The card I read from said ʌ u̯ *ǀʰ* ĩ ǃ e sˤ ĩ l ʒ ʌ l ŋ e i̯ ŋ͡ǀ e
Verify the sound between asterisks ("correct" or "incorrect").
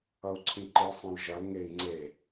correct